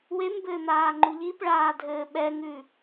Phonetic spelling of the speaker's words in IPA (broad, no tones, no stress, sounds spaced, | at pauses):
w e m b ɘː n̪ aː ŋ͡ǃ u ʎ i p ɭ aː dʱ ɘː ɓ ɛ ŋ ʉ